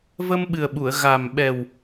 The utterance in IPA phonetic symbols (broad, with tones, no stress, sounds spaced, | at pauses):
v ə˧ m ɓ ɨ˨˩ ə̯ ɓ u˨˩˨ ə̯ ɣ a˨˩ m ɓ ɛ˨˩ w